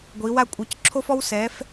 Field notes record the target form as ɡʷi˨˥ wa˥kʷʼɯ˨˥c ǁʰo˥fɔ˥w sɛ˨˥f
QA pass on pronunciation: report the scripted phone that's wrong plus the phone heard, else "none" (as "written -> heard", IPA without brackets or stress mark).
none